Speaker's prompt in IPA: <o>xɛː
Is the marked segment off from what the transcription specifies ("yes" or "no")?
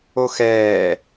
no